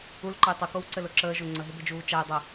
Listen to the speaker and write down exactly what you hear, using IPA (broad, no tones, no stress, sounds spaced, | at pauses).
u l ǃ ə j tˤ ʊ k o w ǀ ɘ l ʊ ǁ əː ʒ o ŋ͡ǀ ə ɦ ɪ b ɘ d͡ʒ uː t͡ʃ a j dˤ ə